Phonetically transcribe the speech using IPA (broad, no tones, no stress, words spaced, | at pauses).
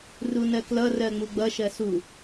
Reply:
runɜklʌ rɜŋ͡muɡ͡bʌ ʃɜsu